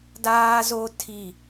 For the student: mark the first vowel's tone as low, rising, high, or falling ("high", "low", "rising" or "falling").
high